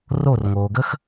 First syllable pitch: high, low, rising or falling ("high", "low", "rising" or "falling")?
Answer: falling